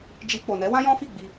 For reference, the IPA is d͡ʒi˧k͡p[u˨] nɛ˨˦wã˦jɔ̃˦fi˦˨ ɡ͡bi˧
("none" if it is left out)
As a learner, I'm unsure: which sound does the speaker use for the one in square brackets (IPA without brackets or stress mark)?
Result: o˨